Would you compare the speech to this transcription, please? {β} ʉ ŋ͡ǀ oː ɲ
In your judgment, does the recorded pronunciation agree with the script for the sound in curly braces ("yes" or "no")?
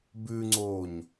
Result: no